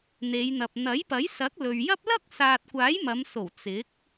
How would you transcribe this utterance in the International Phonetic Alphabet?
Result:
n̪ e˨˧ j n̪ ɐ˨ p̚ n̪ ɐ˨˥ j p ɐ˨˥ j s ɐ˨˥ k̚ l ɵ˨ ɥ j ɐ˥ p̚ l ɐ˥ k̚ s aː˨ t̚ kʷ aː˨˥ j m ɐ˨˧ m s o˨˩ w t͡s ɪ˨˥ k̚

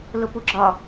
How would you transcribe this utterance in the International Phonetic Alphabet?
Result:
l ʊ p u ɡ͡ǁ ɒ

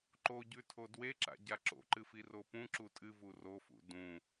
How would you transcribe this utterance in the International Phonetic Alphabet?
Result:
ǃ o ɟ ʉ tʰ o d w e ǁ a̰ ɟ a ǁ o̰ ǃ ɨ f i r o p ũ ǁ u tʼ ɨ v u r o f ṵ d ũ

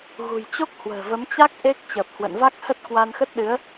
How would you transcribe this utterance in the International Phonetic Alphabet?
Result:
ɣ ṳ˨˩ j t͡ɕ o˦˥ k̚ h w ə̤ː˨˩ v ə˨˦ m t͡ɕ a˦˥ k̚ ʔ e˦˥ k̚ t͡ɕ əː˨˩ p̚ h w ə̰˧˨ n v a˦˥ k̚ h ə˦˥ t̚ k w a˧ n x ə˦˥ t̚ ɗ ɨ˨˦ ə̯

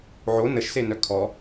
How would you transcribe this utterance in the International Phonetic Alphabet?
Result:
ʕ o n ə ʃ s e n œ kʰ ɔ

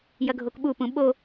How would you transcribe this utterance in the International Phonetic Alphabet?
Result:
j ɐ ɡʱ o k ɓ u p ũ ɓ o

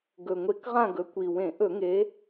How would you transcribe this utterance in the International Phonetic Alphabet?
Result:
ɡ ɵ˨˩ ŋʷ e˧˩˧ k ʁ ã˦˨ ɡ ɵ˨˦ kʷ i˨˩ w ẽ˧˩˧ ʔ ɵ˧˩˧ ŋ e˨˦

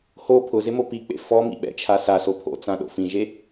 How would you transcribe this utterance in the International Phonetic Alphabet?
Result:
h o pʰ ʊ z ɪ m o p i k͡p ḛ f ɔ m ḭ ɓ ɛ̰ t͡ʃʰ a s a s o pʰ o̰ t͡s ã ɗ o̰ f ĩ ʒ e

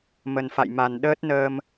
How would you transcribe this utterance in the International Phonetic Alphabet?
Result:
m ə˨˩ n f a̰˧˨ j m a˨˩ n ɗ əː˦˥ t̚ n əː˧ m

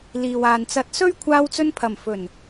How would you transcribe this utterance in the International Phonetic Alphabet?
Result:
l iː˨ w aː˨ n t͡s ɐ˨˥ t̚ s ɵ˥ ɥ kʷʰ aː˧ w t͡s ɵ˧ n pʰ ɐ˨˩ m f ɵ˨˩ n

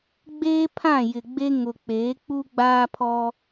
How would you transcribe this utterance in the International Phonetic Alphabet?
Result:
ɡ͡b eː˦ pʰ ã˦˨ j ɪ˨ ɡ͡b e˦ ŋ ʊ˨ k͡p eː˨˦ k͡p u˦ ɡ͡b aː˦ pʰ ɔ˦

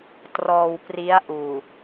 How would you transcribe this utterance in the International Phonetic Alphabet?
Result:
t r ɔː˧ w p r i˦˥ a̯ ʔ uː˨˩

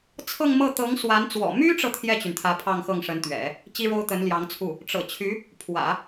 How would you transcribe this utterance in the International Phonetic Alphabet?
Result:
t͡sʰ ɤ˥˧ ŋ m ɤ˥˩ t̪ ɤ˧˥ ŋ s w a˧˥ n t͡s w ɔ̰˨˩ m y˥ ʈ͡ʂ ɤ˨ t̪ʰ j ɛ˥˩ t͡ɕ y˩ n t̪ʰ ä˧˥ pʰ ɑ˥˧ ŋ x ɤ˥˩ ŋ ʂ ə˧˥ n t̪ ɥ ɛ̰˨˩˦ | t͡ɕ i˥ ɻ o˥ ʊ̯ t̪ ə˧˥ n l j ɑ˧˥ ŋ t͡sʰ u˥˩ | ʈ͡ʂ ɤ̰˨˩ t͡ɕʰ y˧˥ | pʰ w ä̰˨˩˦

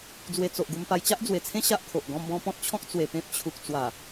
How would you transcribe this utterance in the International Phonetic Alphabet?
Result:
d͡z w e˧ t͡s o˨ ʔ ɡ u˧ m p a˧ j t͡ɕ a˦ ʔ d͡z w e˨˩ t͡sʰ ẽ˦ ɕ a˦ ʔ kʰ o˨ ʔ ɡ ɔ̃˧ m b ɔ̃˧ p ɔ̃˦ t̚ t͡ɕʰ ɔ̃˦ k̚ t͡s w e˨˩ p ẽ˦ p̚ t͡ɕʰ u˨ k̚ t͡s w a˨˩

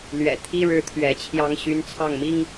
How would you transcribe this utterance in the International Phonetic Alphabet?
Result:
l ɥ ɛ̰˨˩ t̪ʰ i˥ ɻ ɻ̩˥˩ t̪ʰ ɥ ɛ˧˥ t͡ɕʰ j ɑ˥ ŋ ɕ y˧˥ n t͡sʰ ɑ˥˩ ŋ m i˥ ŋ

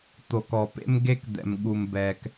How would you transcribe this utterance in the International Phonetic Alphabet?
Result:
t̪ o˨ k ɔ˩ p ḛ˥ m ɡ e˥ k d̪ ɛ̰˩ m ɠ u˩ m b ɛ˩ k

